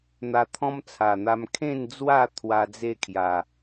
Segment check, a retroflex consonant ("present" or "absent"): absent